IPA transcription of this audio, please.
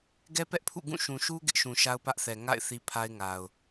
ɡ ɛ˦ p ɛ˦ ʔ pʰ ṵ˦˨ ɡ ũ˦˨ ʃ ũ˨ ʃ u˦ ɡ ɪ˦ ʔ ʃ ũ˨ ʃ a˦ ʊ̯ p ä˦ ʔ θ ɛ˨ ŋ a̰˦˨ ɪ̯ θ i˦ pʰ a˦ ɪ̯ ŋ a˨ ʊ̯

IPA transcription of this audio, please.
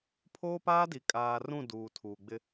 pʰ oː˦ p aː˦ d i˨ kʼ aː˨ r ũ˦˨ d uː˨ tʰ uː˨ ɡ͡b ɪ˦

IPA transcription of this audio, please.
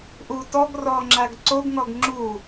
ʔ u t ɔ ɡ r ɔ ŋ͡ǁ a ɡ ǀ o ɡ ŋ ɔ ɡ ŋ͡ǁ u

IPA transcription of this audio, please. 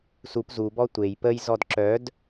s u p z u b ɔ tʷ e j p ə j z ɔ d ǁ œ d

